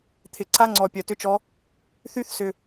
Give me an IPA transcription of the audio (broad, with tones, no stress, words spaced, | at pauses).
t̪ʰɪ˧ǀa˦ŋ͡ǀɔ˧ pʲœ˧tʏ˦t͡ʃɔ˦ | θy˦θsʏ˧